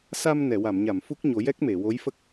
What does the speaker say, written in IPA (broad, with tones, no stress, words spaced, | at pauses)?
sa˧mnɛ˨˩˨ wa˨˩˨mɲa˨˩˨m fu˦˥k̚ɲo˨˩˦ jɛ˦˥k̚me˨˩˨wo˧˥jfə˦˥k̚